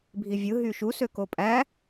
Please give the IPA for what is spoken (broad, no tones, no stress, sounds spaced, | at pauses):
bʱ i vʲ ɯ ɦ y ʃ u s ø k o pʼ æ